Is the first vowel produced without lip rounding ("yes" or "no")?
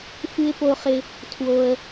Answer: yes